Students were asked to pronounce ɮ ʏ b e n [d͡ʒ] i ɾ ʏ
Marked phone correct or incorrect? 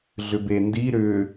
incorrect